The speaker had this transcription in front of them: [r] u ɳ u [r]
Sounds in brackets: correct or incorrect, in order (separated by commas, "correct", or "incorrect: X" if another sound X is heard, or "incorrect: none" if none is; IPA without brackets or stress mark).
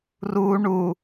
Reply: correct, incorrect: none